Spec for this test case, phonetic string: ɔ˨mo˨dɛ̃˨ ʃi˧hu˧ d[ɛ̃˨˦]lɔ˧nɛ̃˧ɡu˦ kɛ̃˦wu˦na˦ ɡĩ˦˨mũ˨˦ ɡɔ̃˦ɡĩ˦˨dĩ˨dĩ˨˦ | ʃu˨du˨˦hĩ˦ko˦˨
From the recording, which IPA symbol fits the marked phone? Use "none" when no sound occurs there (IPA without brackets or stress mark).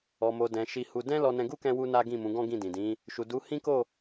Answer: ɛ̃˦